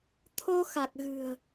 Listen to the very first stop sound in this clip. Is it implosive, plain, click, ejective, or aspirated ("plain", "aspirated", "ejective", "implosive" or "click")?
aspirated